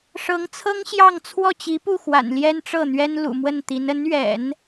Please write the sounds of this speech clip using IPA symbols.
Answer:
ʂ ɤ˧˥ ŋ t͡sʰ ɤ˥ ŋ ɕ j ɑ˥˧ ŋ t͡sʰ w ɔ˥˩ t͡ɕ i˧˥ p u˥˩ x w a̰˨˩ n l j ɛ˥ n ʈ͡ʂ ɤ˥˩ n̪ ɥ ɛ˥ n l ṵ˨˩ m w ə˥˩ n t̪ i˧˥ n ə˧˥ n ɥ ɛ̰˨˩˦ n

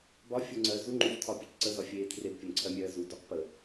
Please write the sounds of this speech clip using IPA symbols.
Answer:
b ɒ fʲ u ŋ͡ǀ ɜ z u ŋ͡ǃ u ç tʰ ɒ pʲ ʊ c ǀ ə z ɒ fʲ eː tʰ r e b pʲ ʊ n ǀʰ ɜ mʲ ɜː z u d u q p ə

